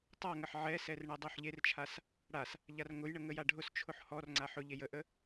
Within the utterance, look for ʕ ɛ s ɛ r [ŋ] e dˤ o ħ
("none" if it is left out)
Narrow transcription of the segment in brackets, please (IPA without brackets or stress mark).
ɳ